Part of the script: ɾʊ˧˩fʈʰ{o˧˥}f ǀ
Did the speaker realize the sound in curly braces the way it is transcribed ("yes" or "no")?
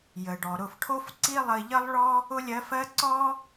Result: no